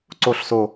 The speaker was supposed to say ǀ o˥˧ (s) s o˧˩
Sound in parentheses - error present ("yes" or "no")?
yes